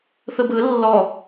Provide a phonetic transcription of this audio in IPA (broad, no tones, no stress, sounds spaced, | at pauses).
θ ɯ b ɯ lː ɔ